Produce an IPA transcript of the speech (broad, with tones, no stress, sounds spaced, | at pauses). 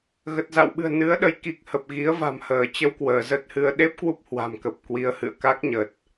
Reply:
ɣ ə˨˩ t̚ z a̰˧˨ w ɓ ɨ̤˨˩ ə̯ n ɨ˨˦ ə̯ ɗ ə˨˦ j k i˨˩ k̚ h ə˨˩ p̚ ɣ i˨˦ ə̯ v a̤˨˩ m h əː˧˩ t͡ɕ ə˧ w k w əː˧˩ z ə˦˥ t̚ h ɨ˧ ə̯ ɗ e˦˥ p̚ k w u˦˥ p̚ h w a̤˨˩ m k ə˨˩ p̚ k w i˨˦ ə̯ h ɨ̰˧˨ ə̯ k a˦˥ k̚ ɲ ə˨˩ t̚